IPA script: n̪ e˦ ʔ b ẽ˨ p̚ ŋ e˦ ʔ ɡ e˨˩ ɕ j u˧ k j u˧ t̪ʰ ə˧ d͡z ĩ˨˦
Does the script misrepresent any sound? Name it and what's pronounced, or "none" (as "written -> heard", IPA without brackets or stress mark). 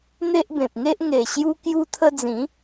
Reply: ɡ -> ŋ